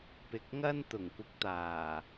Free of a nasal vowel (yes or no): yes